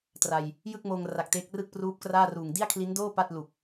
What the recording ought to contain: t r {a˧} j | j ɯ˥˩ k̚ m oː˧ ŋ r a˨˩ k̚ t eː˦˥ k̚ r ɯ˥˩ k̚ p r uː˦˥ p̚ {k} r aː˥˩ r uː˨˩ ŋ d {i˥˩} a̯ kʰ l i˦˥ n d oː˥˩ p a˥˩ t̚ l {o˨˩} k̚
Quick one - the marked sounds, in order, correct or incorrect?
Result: correct, correct, correct, incorrect: u˨˩

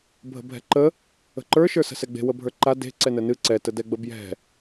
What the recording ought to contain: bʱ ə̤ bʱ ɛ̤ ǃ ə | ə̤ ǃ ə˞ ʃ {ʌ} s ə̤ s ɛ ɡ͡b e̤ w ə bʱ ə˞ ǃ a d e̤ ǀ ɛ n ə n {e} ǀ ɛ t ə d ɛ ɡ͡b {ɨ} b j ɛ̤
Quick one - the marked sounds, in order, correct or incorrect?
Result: incorrect: ə˞, incorrect: ɨ, incorrect: ə

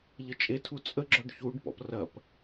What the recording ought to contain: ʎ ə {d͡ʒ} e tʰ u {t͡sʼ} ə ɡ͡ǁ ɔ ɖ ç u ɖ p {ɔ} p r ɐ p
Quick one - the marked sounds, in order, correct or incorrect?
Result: incorrect: t͡ʃʼ, correct, incorrect: ɔ̰

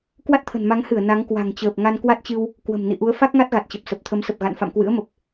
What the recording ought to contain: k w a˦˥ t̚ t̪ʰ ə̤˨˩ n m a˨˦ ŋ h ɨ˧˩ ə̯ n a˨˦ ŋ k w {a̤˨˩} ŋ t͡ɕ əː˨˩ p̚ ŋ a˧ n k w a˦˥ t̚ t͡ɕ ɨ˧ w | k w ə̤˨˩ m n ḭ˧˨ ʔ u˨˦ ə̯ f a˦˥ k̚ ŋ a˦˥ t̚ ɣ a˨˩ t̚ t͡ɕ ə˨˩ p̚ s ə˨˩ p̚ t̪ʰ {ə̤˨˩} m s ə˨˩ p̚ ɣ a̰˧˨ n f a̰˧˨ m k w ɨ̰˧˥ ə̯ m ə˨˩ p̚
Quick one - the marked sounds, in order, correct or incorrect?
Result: correct, incorrect: ə˨˦

